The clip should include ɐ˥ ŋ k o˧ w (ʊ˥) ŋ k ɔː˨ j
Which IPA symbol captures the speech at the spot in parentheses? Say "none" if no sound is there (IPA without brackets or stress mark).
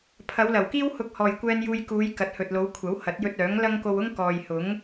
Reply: ʊ˥